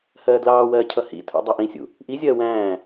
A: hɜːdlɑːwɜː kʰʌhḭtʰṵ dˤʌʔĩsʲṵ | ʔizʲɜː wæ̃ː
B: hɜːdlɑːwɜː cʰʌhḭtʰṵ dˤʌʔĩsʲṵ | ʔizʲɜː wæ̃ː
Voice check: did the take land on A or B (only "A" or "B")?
B